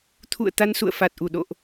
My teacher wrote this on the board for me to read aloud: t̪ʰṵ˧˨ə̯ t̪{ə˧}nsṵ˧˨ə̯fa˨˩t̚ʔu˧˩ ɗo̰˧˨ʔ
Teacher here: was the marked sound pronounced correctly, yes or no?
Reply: no